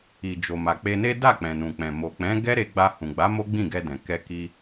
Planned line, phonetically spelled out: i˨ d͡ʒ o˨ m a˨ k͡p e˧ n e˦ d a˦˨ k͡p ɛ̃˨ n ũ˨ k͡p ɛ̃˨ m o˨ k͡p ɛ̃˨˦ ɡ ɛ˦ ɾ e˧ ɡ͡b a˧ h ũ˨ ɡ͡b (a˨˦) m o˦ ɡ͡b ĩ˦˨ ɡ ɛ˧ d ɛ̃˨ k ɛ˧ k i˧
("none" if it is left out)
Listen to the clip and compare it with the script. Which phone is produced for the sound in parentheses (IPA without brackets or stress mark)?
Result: a˨˦